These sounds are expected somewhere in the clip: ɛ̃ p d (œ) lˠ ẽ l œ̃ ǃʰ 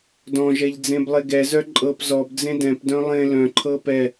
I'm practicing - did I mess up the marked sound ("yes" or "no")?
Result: yes